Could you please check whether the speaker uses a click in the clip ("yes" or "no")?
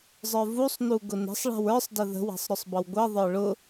no